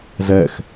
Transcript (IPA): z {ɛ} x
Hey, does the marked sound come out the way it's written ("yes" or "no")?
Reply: yes